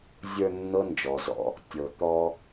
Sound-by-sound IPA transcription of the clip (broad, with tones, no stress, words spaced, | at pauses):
zʲə˞˧ nːɤ˦nd͡ʒɔ˨zɔ̰˧ | tʲɤ˨ t̪ɔ˧